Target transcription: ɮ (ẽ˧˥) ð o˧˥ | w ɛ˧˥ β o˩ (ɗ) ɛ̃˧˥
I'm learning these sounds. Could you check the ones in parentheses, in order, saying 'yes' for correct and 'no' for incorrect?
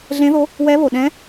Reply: yes, yes

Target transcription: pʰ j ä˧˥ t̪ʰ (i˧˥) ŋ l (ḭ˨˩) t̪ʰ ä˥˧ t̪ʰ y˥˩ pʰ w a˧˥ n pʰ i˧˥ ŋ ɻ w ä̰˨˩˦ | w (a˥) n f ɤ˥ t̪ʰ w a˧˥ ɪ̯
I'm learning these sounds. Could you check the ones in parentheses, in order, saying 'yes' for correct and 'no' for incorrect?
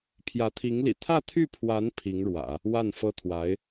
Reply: yes, yes, no

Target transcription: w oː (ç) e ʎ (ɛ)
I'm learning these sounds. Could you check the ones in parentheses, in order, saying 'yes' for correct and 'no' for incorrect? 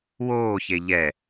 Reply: yes, yes

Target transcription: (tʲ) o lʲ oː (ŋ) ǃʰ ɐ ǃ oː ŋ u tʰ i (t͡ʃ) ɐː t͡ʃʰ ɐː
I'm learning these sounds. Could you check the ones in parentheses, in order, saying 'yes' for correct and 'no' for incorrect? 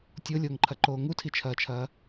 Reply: yes, yes, no

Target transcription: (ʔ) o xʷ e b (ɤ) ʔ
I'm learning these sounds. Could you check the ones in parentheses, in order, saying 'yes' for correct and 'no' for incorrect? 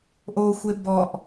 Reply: yes, no

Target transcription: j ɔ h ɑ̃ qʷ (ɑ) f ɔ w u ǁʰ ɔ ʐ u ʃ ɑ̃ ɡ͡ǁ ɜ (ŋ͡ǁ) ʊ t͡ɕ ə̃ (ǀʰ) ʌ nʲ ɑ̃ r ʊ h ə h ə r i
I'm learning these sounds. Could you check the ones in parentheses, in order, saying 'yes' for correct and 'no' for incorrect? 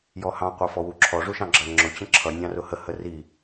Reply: yes, yes, no

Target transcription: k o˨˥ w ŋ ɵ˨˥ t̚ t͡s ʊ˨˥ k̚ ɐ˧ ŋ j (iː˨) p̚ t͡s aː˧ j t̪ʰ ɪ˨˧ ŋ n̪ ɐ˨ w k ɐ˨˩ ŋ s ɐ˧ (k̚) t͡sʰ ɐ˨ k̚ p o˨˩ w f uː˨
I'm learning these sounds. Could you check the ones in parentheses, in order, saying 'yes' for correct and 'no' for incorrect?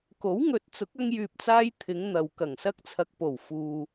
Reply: no, yes

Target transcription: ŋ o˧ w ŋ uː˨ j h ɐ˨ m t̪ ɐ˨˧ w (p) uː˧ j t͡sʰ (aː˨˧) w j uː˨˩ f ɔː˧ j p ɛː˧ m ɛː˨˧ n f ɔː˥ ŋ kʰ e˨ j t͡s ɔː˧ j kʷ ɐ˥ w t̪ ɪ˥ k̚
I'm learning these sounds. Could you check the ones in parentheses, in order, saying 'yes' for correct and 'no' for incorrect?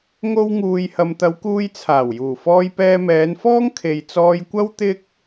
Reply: no, no

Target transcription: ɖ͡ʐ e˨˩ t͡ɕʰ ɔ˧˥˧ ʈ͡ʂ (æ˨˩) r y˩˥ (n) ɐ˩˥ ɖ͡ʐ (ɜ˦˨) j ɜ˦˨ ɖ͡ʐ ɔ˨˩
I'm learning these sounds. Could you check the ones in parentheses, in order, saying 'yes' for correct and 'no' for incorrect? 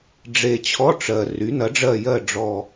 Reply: no, yes, yes

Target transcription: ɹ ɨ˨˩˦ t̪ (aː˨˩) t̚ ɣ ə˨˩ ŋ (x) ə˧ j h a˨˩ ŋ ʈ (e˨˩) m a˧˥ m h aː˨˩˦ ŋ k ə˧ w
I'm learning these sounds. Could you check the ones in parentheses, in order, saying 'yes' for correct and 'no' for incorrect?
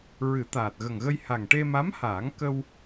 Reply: yes, no, no

